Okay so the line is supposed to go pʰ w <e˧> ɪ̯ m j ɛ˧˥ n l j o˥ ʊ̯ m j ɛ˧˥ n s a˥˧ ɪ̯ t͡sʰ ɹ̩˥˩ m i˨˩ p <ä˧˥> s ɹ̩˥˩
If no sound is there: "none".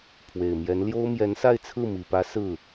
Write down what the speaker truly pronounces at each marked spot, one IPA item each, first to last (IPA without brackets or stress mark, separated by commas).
e˨˩, ä˧˥